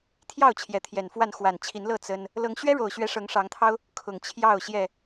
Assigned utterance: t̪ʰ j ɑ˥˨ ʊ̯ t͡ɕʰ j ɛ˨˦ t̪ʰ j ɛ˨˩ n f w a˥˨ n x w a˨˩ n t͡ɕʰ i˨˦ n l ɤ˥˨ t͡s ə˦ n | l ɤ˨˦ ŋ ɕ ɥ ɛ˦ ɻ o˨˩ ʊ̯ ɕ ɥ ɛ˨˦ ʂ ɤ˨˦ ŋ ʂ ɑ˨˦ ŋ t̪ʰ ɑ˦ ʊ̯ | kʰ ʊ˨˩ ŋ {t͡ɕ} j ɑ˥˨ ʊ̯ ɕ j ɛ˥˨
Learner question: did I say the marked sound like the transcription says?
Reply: no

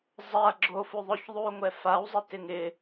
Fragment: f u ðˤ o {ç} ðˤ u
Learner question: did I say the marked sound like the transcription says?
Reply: yes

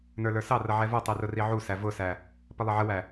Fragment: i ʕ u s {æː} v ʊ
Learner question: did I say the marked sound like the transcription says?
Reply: no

